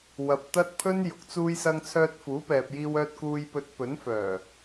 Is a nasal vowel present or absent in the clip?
absent